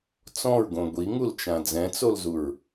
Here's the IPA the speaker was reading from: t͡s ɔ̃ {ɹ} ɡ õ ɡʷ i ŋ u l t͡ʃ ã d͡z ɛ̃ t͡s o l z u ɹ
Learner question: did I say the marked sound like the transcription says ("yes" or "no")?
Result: yes